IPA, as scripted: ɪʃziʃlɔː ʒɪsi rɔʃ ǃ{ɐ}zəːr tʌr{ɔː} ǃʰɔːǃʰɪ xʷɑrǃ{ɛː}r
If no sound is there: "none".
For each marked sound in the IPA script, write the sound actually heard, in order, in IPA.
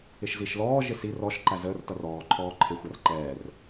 æ, ɔː, ɛː

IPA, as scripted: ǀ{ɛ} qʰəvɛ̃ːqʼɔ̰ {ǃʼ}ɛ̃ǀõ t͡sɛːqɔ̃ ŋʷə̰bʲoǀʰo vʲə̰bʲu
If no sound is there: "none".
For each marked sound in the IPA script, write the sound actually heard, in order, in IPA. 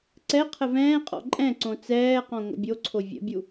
ɛ, ǃʼ

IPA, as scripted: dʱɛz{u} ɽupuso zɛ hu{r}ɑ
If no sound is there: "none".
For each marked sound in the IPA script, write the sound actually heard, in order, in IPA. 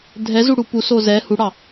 u, ɽ

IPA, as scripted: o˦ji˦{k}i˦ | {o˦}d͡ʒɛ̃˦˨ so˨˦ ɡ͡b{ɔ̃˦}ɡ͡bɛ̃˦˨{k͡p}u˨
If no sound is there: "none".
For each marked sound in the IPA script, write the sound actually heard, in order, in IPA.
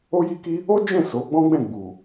k, o˦, ɔ̃˦, ɡ͡b

